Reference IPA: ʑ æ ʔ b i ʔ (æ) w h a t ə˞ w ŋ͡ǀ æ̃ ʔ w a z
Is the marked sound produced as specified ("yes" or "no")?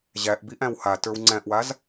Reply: no